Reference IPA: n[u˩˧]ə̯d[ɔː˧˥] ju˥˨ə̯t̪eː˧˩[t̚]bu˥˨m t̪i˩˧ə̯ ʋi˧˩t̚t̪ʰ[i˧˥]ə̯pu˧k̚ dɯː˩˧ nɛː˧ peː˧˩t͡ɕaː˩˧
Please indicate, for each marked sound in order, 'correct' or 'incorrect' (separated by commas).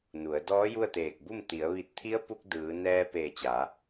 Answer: correct, correct, incorrect, correct